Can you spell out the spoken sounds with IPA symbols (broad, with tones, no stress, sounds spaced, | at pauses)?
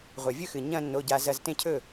ʁʷ a˩ vʲ ɵ˥˩ x ɨ˩ ɲ ɐ̃˧ nː o˩˧˩ ɟ a˧ z ɐ˧ z t ẽ˥˩ cʰ ɵ˥˩